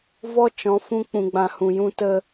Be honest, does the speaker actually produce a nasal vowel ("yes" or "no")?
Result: yes